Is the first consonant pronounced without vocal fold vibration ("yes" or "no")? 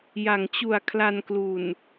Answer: no